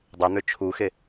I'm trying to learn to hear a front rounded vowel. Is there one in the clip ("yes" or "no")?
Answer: yes